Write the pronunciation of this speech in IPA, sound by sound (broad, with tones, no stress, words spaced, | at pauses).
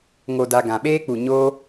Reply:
ŋo˨da˨ ɡã˨ɓeː˦k͡pu˨ ɲoː˧